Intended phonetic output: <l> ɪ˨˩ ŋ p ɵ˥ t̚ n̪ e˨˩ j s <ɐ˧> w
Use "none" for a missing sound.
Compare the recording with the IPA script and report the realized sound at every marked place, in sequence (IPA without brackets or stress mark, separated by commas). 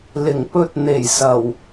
l, ɐ˨˩